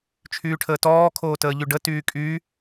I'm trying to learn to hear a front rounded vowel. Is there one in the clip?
yes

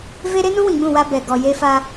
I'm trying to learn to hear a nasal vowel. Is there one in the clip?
yes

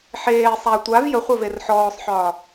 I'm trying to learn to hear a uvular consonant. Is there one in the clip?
yes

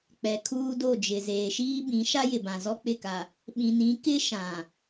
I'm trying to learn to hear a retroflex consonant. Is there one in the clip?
no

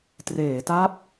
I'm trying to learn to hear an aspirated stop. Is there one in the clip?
no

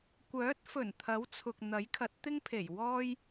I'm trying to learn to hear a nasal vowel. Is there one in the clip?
no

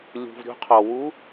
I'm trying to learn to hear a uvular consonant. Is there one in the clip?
yes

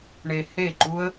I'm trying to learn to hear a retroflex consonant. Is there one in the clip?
yes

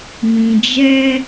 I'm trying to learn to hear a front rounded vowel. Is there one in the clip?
no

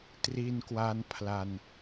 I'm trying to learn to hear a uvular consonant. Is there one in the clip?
no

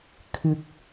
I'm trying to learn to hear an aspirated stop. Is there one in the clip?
yes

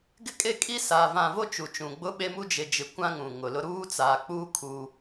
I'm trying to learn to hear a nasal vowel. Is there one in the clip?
yes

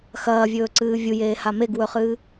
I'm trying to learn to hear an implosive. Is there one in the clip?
no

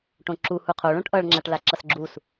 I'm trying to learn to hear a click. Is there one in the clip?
yes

